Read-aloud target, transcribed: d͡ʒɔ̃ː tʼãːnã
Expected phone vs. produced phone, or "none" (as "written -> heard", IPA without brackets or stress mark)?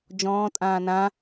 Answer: none